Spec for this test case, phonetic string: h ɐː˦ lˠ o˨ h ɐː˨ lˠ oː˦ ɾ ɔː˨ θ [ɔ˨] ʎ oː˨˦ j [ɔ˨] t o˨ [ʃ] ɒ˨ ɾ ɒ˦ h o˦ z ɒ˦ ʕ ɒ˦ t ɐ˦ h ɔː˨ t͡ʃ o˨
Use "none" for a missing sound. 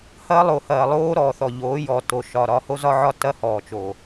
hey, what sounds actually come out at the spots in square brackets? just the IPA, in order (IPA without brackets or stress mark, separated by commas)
ɔ˨, ɔ˨, ʃ